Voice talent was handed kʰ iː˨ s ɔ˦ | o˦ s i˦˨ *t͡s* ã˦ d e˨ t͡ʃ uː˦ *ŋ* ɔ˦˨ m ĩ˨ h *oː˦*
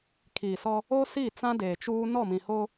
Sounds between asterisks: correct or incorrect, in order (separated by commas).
correct, incorrect, incorrect